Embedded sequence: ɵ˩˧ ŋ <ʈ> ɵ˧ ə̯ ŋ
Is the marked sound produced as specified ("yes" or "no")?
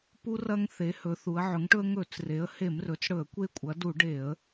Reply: yes